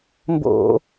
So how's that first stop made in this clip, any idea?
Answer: plain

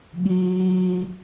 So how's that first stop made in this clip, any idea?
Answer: implosive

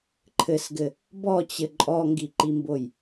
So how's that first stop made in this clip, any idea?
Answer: click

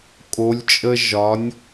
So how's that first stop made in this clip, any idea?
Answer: ejective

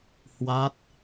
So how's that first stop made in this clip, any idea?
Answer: plain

